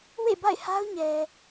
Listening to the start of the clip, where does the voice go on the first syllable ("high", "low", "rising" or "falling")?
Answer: falling